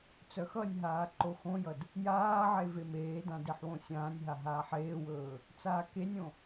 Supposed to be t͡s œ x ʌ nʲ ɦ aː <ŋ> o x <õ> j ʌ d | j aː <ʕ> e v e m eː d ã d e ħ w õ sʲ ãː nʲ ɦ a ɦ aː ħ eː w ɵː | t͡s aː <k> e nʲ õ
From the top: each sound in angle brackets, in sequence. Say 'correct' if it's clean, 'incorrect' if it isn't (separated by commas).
incorrect, correct, correct, correct